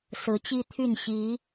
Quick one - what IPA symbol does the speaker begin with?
s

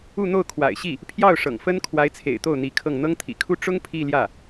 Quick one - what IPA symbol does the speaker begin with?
u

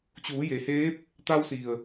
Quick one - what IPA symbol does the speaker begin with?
t͡ɕ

